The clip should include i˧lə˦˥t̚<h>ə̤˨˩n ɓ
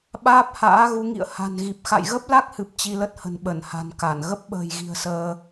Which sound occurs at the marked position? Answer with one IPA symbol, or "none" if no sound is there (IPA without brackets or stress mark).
h